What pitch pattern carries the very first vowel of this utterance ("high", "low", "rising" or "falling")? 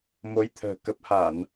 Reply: rising